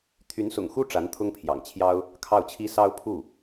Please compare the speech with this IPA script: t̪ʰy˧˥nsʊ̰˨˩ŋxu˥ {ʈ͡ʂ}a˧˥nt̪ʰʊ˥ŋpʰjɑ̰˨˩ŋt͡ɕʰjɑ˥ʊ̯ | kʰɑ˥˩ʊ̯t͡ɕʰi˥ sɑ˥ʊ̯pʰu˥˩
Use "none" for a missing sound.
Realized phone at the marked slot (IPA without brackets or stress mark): ʈ͡ʂ